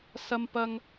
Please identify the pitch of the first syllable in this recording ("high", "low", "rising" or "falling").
high